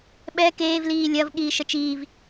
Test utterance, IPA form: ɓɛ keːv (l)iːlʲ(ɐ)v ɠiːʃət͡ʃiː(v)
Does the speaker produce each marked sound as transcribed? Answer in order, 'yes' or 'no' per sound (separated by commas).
yes, yes, yes